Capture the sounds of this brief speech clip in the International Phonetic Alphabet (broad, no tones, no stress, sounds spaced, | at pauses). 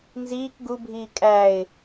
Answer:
n z iː k ɡ u bʱ iː kʼ æ ɪ̯